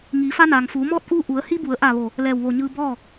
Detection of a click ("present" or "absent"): absent